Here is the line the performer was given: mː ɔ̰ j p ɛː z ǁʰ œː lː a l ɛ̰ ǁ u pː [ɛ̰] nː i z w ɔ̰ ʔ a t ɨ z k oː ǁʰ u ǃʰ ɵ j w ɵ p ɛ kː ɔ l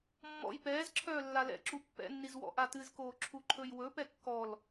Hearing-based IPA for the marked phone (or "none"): ɛ̰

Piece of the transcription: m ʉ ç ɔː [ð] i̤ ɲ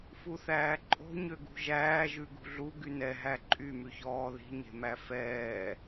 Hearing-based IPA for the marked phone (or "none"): ð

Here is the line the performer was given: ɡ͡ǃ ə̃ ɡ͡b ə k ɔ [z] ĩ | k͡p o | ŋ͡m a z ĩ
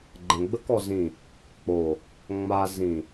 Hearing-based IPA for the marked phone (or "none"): z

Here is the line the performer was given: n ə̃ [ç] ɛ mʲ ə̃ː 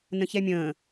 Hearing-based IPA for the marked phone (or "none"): ç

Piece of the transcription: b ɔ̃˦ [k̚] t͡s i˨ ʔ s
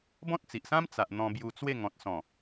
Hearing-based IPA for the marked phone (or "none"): t̚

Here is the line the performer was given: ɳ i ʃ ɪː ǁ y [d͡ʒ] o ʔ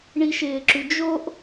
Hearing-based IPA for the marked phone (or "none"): d͡ʒ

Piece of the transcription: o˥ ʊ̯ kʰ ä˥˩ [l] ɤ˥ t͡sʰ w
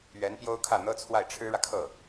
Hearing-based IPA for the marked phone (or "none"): n̪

